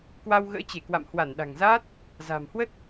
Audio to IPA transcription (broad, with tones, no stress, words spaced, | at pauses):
kwa˧wɣə̰ː˧˥t͡ɕe˧˩kwa̰˧˨m hwa˧˩nɗa̤˨˩ŋzaː˦˥t̚ | za̤ː˨˩mhwə˦˥t̚